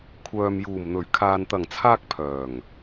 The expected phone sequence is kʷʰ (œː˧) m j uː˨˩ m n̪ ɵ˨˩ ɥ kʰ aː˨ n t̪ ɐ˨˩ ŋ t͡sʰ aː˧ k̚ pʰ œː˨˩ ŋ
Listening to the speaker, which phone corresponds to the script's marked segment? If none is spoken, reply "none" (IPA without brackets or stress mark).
œː˨